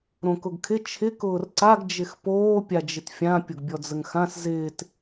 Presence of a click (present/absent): present